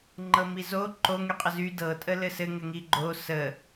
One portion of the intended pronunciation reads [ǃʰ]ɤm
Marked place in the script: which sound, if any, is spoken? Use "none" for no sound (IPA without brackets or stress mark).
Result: ŋ͡ǃ